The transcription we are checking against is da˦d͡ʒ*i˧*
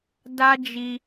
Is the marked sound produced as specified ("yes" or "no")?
yes